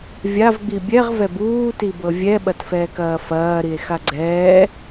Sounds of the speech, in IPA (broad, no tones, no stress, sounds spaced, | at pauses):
vʲ a v ɡ͡b i bʲ ɛ ʁ v ɛ b uː t i b ɤ vʲ ɛ ɓ ɐ t f ɛː k ɐː f ɐː ɾ i e̯ x a ɡ͡ǀ ɛː